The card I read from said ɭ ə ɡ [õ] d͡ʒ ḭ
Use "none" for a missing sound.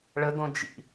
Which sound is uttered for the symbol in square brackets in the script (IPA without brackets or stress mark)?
õ